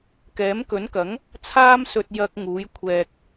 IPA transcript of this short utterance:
k ɛː˨˥ m k ɵ˨˥ n k ɐ˨˥ ŋ | t͡sʰ aː˧ m s ɵ˨ t̚ j ɐ˧ k̚ ŋ uː˨˥ j kʷʰ ɛː˨ k̚

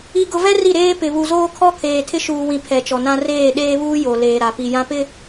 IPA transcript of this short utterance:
i˨ ɡ ʊ˨ v ɛ˦ r i˦˨ ɾ eː˦ p ɪ˨ β u˨ z oː˦ kʰ ɔ˦ kʰ eː˨ tʰ ɪ˦ ʃ uː˨ w ĩ˨ pʰ ɛ˨ t͡ʃ ɔ˨ n ã˦ r eː˦˨ ɗ eː˦ β uː˦ j o˨ l eː˨ ɾ a˨ p i˨ j ã˦ p ɪ˦

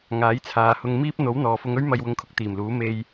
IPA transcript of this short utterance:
ŋ aː˨˥ j t͡sʰ aː˨˧ h ʊ˧ ŋ m iː˥ p̚ n̪ o˨˥ w n̪ ɔː˨˧ f ʊ˧ ŋ ɵ˥ ɥ m ɐ˧ j w ʊ˧ ŋ kʰ ʊ˧ k̚ t̪ iː˨˩ m l uː˨˥ m e˧ j

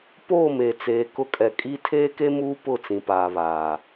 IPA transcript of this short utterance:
p oː˦˨ m e˨ t͡s eː˨ k ʊ˦ kʼ ɛ˨ kʼ i˦ tʰ eː˦ k e˦ m uː˦ p ʊ˦˨ t͡s ĩ˨ p aː˨ β aː˨

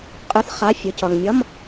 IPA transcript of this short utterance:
qʼ ɯ˧˥˧ θ χ a˧˥˧ fʲ ɯ˨ c ʌ˨ ŋ mʲ ʌ˧˥˧ m

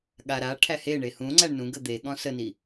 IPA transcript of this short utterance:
ɠ a ɾ a ʈʰ æ h e ɳ e h ũ ŋ͡ǀ æ ɳ n ũ ɡ ə d̪ e ɠ ɔ̃ s ə n i

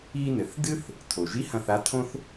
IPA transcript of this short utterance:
i˧ n ɘ˩˧ θ d ɨ˥ θ | tʰ o˩ ʒ i˧˥ h ɐ̃˧ θ a˧˥ tʰ õ˥ θ

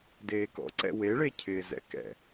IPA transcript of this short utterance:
d eː k ɔ̰ ǀ ɛ̰ w e ɭ e cʰ ɪː z ɛ̰ k ɛ̰

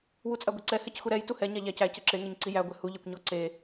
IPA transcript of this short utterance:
w u t͡sʼ æ ɡʷ e ǀ ɛ h ɛ c x u ɾ ɛ j t u h ɛ ɲ a ʎ æ c æ c ɛ ǁ e ŋ ɛ ɲ ǀ i j æ ɡʷ ɛ h u ʎ e kʷ ɲ ɔ ǀ e

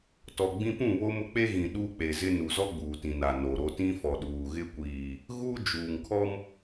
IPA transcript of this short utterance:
t ɔ˨ ɡ͡b ĩ˦ p ũ˦˨ β o˦ m ʊ˦ k͡p e˦ ɣ ĩ˨ ɗ uː˦ k͡p e˨ z ɪ˦ n u˨ z ɔ˦ ɡ͡b uː˨ t ĩ˨ n a˨ n o˨ ɾ o˦ t ĩ˦ f ɔ˨ ɗ uː˨ ɣ ɪ˦ kʷ iː˨ | ɣ u˦ d͡ʒ uː˨ ŋ kʰ ɔ˦ m

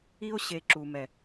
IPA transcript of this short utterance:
i˧ o̯ ɕ e˨ ǁ u˨ m ɛ˨

